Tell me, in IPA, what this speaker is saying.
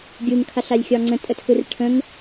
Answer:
ɡʲɯŋkʰaɬalʲxʲɒ ŋ͡ǀə̃tʼətʰɯr ʈʰə̃ŋ

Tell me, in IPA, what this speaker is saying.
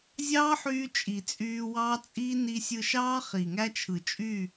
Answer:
zʲɑː˦ħyː˧ t͡ʃʼi˨t͡sʼyː˧wɑː˦t͡sʼiː˦ ni˧sʲɯ˧ʃɑː˦ χi˨ŋæ˦t͡ʃʰɯ˨ t͡ʃʼy˦˨

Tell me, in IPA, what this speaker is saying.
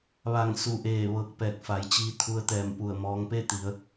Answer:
ʋa˧˩ŋsu˧˩ʔeː˧˩ ʋɤː˧˩k̚pɛː˧˩k̚fa˩˧jt͡ɕiː˧ t̪ʰu˧ə̯t̪ɛː˧˩mpu˧˩ə̯mɔː˧ŋ pe˥˨t̪i˩˧ə̯

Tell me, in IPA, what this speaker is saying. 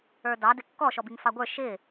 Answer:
ə˞dɑ dɪkːɔ ʃɔbiŋfɑɡʷə˞ ʃɪ

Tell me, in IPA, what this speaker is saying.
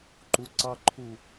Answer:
ǃuǀɑǃʰu

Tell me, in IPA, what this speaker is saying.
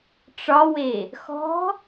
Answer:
ʈ͡ʂɒwe | xɔ̤

